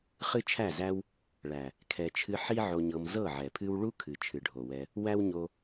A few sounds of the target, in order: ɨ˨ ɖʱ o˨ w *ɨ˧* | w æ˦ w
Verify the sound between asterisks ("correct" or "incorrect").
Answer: incorrect